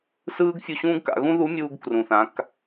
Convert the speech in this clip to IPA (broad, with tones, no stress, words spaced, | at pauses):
sɯː˥ɡ fʲu˧ɕũː˥ɡka̰˩˧ ɣũ˥ðu˧˥mʲuː˧ɡ krũ˩θã˩˧k